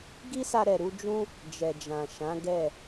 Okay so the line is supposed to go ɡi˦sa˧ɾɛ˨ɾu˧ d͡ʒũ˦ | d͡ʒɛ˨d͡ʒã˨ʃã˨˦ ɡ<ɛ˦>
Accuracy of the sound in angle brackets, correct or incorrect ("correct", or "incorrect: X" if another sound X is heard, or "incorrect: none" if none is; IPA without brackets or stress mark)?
incorrect: ɛ˦˨